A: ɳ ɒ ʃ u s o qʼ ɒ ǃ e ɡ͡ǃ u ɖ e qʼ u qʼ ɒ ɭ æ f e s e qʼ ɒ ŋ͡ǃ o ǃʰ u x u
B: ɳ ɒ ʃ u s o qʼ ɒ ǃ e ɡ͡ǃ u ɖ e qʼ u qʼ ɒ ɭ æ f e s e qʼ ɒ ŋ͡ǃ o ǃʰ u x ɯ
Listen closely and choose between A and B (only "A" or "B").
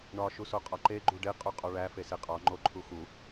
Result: A